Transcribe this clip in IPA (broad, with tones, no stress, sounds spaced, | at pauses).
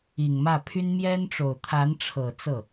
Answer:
i˨˩ ŋ m ä˥˩ pʰ y˥ n m j ɛ˥ n ʈ͡ʂ o˨˩ ʊ̯ t̪ʰ a˧˥ n ʈ͡ʂʰ ɤ˨˩ t͡s ɤ˥˩